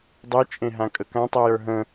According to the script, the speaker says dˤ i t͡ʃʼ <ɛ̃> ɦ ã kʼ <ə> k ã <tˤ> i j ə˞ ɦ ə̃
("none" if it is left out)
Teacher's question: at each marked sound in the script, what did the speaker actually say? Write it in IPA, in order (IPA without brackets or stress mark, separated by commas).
ẽ, ə, tˤ